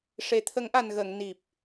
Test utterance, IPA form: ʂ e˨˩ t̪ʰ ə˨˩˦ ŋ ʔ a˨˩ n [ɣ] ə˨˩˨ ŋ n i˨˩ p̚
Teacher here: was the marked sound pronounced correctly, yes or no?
yes